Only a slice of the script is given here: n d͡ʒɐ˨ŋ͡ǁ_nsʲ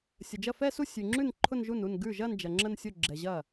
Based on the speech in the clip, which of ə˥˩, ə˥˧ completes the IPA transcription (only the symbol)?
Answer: ə˥˧